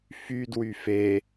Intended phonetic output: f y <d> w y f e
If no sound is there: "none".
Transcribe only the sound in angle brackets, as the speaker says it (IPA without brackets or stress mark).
d